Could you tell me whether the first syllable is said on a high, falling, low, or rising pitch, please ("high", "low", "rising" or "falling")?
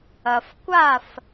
low